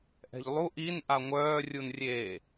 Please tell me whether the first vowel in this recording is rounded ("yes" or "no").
no